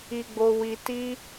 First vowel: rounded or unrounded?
unrounded